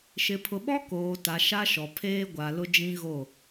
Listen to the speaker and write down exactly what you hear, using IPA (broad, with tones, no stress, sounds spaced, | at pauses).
ʃ ɪ˨ pʰ ʊ˨ ɓ ɔ˦ k oː˨ t a˨ ʃ a˦ ʃ ɔ˨ pʰ eː˦ ɡʷ a˨ l ʊ˦ d͡ʒ ĩ˦ ɣ o˦˨